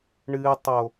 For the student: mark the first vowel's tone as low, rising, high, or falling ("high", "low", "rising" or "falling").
low